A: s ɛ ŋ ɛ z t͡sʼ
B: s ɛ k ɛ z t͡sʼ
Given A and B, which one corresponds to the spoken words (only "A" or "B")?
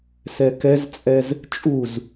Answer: B